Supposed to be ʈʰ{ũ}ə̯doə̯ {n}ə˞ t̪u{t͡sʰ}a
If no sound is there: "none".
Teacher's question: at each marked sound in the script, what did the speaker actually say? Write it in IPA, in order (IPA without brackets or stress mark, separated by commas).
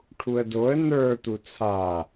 u, n, t͡sʰ